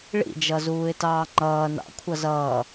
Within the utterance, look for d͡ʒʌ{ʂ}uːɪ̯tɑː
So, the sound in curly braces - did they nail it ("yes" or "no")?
no